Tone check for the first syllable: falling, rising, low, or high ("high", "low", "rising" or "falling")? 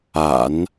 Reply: low